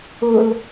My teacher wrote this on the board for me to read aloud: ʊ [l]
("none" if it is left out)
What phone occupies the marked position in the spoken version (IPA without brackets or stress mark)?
l